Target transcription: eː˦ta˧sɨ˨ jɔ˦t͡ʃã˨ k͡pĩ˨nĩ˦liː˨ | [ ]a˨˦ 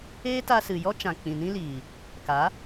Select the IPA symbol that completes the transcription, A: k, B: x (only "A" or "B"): A